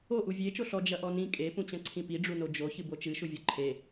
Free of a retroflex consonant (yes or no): no